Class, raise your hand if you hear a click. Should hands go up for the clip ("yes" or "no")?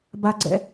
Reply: yes